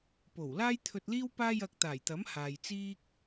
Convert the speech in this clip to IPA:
po˨˩wlaː˥jt̪ʰɵ˧t̚ liː˥w paː˥jɐ˧k̚t̪aː˨˩jt̪ɐ˨˥m haː˨jt͡siː˥k̚

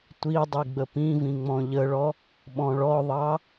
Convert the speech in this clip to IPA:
tʷidˤi ɡ͡bəpĩvĩ ŋ͡mɔ̃ʎəɭɔ | ɓɔ̃ɭɔðˤɑ

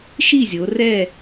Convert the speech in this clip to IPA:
ʃi˥˨zʲo˩˧rɛ˥˨

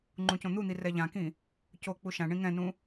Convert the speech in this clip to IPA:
ŋ͡ǃũcõn̪un̪i rɛʎãkĩ | co k͡puʃãɳĩ ŋɛ̃nũ

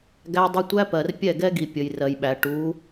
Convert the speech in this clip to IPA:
ɡæ˦dˤə˦ tʷæ˦pɜ˨r pʲɛ˦˨ɡɛ˦ɡi˨ pʲə˨j rɜ˨jɓæ˨ ʈu˨˦

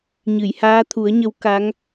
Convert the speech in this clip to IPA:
ɲɨ˨˩˨jhaː˧˥t̪ʰu˨˩˦ə̯ɲə˧˥w ka˧˥ŋ

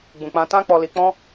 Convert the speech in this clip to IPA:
ɡ͡bũ˨ k͡pã˧tã˦k͡pɔ˧li˧ k͡pɔ̃˦

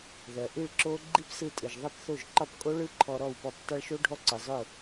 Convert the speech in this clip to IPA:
ðɜ˩ʔi˥˩ɭǁo˦˥ ɡ͡ǃi˦˥psɯ˧tʼɯ˩ʒ ðˤɯ˥˩pθo˥˩ʒ ǃɒ˥˩pkʼo˦˥ɭɯ˦˥ ǃʰɔ˧ɾɔ˥˩wpɔ˥˩p tˤɯ˧ɭʃo˦˥ ɖʱɔ˦˥ǀɯ˩ zˤʊ˥˩

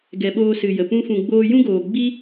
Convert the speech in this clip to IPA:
ɡɛ˨ɓoː˧ sɨ˨jə˨ pũ˧fũ˨ɡ͡boː˧ jũ˦ɡoː˨ɡ͡bi˦

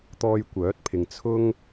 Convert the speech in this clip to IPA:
t̪ɔː˧jkʷœː˨˥t̚pʰɪ˨ŋ t͡sʰʊ˥ŋ

